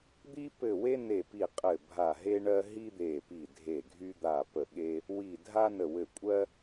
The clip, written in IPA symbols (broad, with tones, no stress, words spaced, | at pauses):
d̪i˥pɘ˦˨we˥ ne˦˨pi˦˨ qʼɘ˦˨bʱa˦˨ɦe˥ɳɜ˥ ɦi˥d̪e˦˨ pi˦˨dʱe˦˨ɡʱy˥ d̪a˦˨pə˦˨ɠe˥ | wi˦˨dʱa˥nə˦˨wɘ˦˨ kʷʼɜ˥